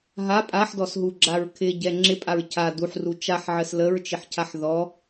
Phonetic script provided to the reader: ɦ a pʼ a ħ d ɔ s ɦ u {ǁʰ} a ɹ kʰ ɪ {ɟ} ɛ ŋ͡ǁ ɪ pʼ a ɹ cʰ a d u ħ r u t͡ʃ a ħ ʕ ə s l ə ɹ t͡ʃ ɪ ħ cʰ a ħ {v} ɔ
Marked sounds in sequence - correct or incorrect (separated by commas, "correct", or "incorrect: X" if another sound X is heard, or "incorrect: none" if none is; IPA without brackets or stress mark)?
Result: incorrect: ɡ͡ǁ, correct, incorrect: ð